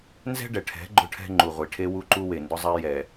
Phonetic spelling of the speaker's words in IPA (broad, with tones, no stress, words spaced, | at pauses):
nzɛ̤˦ɖɛ˨ʈʰɛ̤˨˦ ɡ͡ǃʊ˦ʈʰɛ̤˦ ŋ͡ǃu˨ʁʷi˨ʈʰe˦wu˦ ǃu˦we˨ndʊ˦zˤɛ˦ jɛ˨